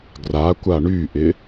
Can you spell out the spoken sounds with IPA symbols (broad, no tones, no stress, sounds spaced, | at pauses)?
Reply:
ɡ r a kʷ a ɳ y ʔ ɪ